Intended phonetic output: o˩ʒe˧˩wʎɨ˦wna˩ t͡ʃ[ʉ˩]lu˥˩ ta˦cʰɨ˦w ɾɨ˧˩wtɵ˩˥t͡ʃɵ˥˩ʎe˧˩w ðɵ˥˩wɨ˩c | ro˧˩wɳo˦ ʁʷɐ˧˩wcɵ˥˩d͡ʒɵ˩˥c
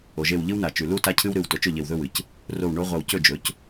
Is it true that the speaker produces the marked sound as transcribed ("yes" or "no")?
yes